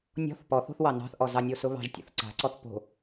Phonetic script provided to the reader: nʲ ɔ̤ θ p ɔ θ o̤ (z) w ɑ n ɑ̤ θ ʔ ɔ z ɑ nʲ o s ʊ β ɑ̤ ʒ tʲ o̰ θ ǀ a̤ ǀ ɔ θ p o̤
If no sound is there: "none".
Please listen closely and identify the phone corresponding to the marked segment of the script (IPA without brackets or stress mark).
θ